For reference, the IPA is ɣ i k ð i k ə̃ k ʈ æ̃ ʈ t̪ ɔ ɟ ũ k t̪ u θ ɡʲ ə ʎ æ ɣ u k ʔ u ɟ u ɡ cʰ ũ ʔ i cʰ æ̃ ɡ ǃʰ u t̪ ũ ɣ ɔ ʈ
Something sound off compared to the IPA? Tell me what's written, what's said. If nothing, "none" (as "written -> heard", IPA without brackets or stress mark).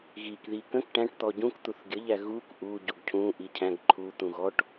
none